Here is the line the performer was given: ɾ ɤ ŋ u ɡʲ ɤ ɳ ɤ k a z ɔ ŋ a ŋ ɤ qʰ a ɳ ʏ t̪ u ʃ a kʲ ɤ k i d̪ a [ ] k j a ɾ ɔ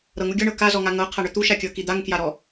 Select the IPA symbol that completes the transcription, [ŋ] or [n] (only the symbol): ŋ